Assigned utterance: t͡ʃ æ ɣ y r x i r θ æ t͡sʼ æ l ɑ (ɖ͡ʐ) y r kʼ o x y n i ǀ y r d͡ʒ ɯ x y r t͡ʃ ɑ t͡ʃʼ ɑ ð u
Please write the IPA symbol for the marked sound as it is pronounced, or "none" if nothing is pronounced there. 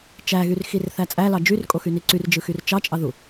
d͡ʒ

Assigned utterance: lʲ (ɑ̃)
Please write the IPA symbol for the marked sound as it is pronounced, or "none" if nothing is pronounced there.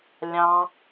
ɑ̃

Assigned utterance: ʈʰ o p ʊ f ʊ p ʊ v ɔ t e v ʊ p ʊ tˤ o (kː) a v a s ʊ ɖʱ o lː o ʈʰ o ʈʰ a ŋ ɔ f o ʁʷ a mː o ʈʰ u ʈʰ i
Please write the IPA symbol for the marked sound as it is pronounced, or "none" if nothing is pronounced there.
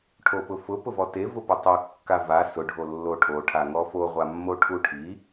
kː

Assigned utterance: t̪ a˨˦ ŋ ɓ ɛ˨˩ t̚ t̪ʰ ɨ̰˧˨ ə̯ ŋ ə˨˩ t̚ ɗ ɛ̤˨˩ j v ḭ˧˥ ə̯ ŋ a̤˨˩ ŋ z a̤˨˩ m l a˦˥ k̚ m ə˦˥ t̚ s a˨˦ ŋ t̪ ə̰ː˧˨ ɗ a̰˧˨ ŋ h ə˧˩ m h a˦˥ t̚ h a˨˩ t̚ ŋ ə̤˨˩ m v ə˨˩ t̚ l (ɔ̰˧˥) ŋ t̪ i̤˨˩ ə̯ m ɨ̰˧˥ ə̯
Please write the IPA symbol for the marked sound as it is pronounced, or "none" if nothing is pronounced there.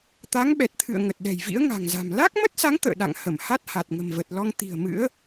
ɔ˧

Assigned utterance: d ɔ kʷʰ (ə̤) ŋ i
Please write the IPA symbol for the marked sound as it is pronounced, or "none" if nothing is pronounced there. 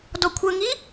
ə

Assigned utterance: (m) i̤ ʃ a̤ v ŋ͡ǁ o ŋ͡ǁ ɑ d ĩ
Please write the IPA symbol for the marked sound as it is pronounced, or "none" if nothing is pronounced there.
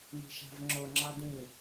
m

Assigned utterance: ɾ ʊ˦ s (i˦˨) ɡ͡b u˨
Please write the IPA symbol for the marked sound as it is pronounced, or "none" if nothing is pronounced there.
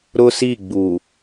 i˦˨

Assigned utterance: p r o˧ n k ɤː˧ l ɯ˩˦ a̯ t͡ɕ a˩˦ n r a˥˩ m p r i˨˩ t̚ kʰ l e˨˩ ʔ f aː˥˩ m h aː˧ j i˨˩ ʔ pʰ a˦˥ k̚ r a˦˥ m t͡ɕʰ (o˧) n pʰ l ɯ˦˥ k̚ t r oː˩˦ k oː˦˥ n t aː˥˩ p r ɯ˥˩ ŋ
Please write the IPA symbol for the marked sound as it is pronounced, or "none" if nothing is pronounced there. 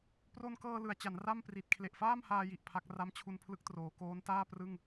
u˧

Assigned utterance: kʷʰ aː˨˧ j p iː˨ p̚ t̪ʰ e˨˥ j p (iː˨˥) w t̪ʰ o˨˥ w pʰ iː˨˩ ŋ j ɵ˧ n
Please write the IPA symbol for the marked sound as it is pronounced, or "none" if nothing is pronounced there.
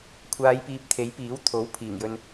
iː˨˥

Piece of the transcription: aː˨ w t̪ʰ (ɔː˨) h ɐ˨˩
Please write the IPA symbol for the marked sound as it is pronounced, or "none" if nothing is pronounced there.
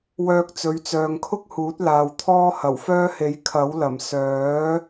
ɔː˥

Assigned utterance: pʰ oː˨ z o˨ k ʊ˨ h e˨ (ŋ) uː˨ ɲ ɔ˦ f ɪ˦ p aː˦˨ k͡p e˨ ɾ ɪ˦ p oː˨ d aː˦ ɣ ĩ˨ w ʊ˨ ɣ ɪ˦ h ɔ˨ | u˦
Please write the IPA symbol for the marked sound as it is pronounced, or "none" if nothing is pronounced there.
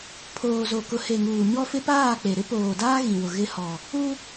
ŋ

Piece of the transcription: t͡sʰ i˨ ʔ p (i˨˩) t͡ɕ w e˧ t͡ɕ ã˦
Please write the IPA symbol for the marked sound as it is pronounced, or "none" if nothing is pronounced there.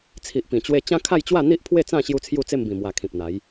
ĩ˨˩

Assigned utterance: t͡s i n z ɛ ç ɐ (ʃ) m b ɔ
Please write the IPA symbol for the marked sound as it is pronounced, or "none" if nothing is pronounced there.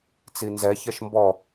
ʃ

